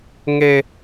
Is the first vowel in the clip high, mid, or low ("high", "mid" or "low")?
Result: mid